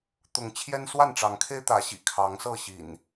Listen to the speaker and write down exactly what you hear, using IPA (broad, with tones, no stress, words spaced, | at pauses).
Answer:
t̪ʊ˨˦ŋ t͡ɕʰjɛ˦nswa˥˨nʈ͡ʂɑ˨˦ŋkʰe˦ɪ̯ t̪ä˨˦ɕḭ˨˩ kʰɑ˨˦ŋsɤ˥˨ɕḭ˨˩n